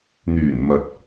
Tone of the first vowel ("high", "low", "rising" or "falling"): low